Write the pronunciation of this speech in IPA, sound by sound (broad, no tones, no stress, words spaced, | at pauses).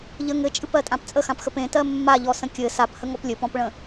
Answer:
ʎə ŋɘt͡ʃʼɨpɜtʼãp t͡sʼəxãpxəp ẽtɜ mːaʎɔsə̃ kʲɘ saphəŋɔp lʲɘpɔ̃pɭə̃